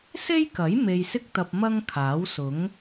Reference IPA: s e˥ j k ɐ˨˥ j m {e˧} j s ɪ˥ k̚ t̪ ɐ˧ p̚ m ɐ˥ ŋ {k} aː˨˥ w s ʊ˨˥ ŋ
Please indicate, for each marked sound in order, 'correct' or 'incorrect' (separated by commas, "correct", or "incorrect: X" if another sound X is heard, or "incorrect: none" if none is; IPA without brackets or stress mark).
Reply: correct, incorrect: kʰ